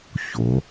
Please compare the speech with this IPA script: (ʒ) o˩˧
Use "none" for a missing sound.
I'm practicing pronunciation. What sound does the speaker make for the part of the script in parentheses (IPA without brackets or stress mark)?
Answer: ç